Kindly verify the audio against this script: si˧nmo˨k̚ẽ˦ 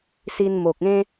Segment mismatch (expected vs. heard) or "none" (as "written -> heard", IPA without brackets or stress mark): none